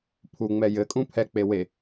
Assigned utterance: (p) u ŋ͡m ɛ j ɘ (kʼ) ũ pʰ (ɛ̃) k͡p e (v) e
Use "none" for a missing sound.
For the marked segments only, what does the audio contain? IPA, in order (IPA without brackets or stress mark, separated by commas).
pʰ, kʼ, ɛ, w